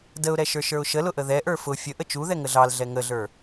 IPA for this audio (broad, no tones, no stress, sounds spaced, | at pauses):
d ə ʊ̯ ɾ ɛ ʃ ə˞ ʃ ə˞ ʊ̯ ʃ ə l ʊ ʔ ə ð ɛ ʔ ə˞ f ʊ fʲ ə ʔ ə t͡ʃ u ð ɛ ŋ ə ɮ ɑ l ɮ ɛ ŋ ə ɮ ə˞